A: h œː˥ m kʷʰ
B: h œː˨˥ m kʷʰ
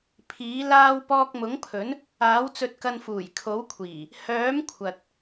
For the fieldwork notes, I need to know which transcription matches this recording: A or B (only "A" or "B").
B